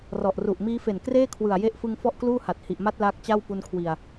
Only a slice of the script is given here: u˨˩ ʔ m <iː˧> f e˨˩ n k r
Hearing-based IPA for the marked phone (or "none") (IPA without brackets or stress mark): iː˦˥